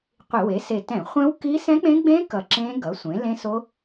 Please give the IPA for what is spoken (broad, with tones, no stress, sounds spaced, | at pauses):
qʷ i˧˩˧ w e˩˥ s e˨˩ t ɛ̃˧˩˧ χʷ ɛ̃˦˥ w k i˦˥ s ɛ̃˦˥ k͡p ẽ˦˥ ɡ͡b ẽ˦˥ k ʌ˨˩ ǁ ẽ˦˥ ɡ ʌ˩˥ sʷ ẽ˩˥ l ẽ˦˥ s o˦˥